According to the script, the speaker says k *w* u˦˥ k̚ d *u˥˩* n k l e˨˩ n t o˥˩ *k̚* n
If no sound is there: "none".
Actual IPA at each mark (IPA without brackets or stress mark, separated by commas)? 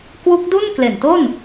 w, u˥˩, none